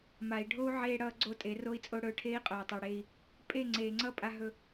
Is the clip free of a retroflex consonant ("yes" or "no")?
no